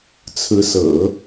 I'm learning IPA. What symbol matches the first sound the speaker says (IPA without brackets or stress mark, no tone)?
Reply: t͡sʰ